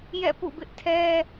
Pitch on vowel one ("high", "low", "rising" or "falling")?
falling